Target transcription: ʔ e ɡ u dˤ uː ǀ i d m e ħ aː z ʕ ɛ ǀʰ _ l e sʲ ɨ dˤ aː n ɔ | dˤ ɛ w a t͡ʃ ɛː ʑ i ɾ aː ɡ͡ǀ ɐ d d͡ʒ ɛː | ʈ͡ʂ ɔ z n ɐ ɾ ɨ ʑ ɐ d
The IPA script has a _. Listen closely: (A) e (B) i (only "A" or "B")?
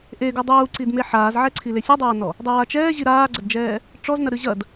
B